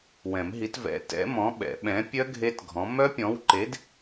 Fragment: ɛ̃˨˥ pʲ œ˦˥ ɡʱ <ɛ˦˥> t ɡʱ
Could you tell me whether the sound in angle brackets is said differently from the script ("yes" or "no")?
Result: yes